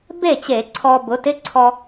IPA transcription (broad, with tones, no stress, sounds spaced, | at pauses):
b e˥˩ t͡ɕ e˧˩˧ ǀʰ ɔ˧ b ʊ˩˥ t ɪ˧˥˧ ǀʰ ɔ˧